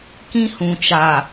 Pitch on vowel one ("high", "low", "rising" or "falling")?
high